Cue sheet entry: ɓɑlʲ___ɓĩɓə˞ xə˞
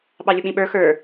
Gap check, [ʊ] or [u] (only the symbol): ʊ